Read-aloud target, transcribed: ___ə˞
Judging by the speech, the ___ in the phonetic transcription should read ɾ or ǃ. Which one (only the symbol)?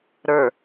ɾ